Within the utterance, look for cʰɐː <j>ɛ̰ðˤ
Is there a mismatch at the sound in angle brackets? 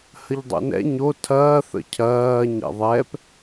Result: yes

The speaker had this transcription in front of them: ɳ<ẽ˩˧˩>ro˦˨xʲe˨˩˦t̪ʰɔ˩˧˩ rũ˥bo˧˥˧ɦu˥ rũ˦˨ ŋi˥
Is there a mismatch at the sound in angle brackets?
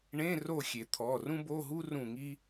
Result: yes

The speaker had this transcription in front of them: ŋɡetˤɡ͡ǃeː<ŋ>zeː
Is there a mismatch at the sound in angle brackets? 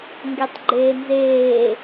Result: yes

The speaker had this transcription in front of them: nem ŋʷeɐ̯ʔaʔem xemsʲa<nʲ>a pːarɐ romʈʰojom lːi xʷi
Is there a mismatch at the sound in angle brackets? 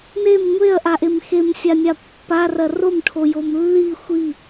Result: no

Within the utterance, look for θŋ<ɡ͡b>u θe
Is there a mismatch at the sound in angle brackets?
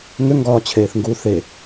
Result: yes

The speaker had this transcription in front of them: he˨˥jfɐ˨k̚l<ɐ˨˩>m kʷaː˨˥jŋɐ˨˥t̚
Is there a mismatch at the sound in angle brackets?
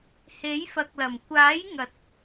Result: no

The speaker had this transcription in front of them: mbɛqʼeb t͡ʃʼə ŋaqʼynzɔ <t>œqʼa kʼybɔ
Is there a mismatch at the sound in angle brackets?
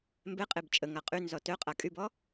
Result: no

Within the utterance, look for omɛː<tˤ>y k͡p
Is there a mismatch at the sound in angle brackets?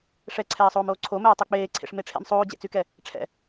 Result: no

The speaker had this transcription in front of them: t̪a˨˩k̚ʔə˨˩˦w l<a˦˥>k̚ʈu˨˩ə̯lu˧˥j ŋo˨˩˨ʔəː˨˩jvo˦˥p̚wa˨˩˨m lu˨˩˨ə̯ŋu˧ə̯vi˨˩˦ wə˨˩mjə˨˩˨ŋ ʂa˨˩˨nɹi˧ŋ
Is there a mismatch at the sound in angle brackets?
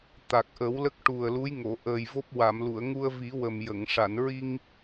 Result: yes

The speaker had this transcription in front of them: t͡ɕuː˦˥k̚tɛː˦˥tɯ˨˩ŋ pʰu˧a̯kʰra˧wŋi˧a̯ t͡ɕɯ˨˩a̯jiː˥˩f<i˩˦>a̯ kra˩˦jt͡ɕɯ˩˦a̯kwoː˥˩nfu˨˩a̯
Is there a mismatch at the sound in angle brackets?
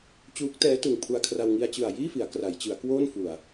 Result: no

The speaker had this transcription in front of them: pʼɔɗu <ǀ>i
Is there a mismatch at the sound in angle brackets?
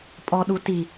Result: yes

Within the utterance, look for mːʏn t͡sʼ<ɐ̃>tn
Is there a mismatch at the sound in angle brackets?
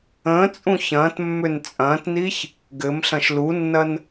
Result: yes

